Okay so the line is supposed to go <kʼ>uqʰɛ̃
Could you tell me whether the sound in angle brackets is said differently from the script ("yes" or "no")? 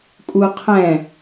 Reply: no